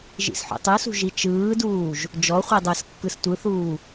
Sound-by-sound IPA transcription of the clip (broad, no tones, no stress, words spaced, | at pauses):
ʒḭsħo̰tˤɯsṳ ʒit͡ʃɯːduːʒ | d͡ʒɔχʷi dˤəːskːɯstʷɯθuː